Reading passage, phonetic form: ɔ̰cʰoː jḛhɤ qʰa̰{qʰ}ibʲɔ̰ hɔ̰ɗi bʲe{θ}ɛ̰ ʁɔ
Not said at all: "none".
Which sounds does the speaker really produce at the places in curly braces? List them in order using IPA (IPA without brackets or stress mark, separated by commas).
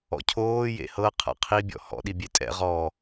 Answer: qʰ, tʼ